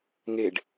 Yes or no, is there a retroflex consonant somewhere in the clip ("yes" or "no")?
yes